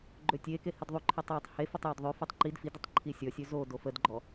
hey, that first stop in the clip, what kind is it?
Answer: click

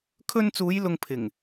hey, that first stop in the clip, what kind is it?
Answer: aspirated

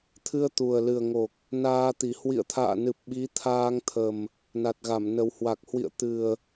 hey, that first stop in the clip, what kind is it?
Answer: aspirated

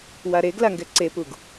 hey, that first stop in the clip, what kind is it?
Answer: plain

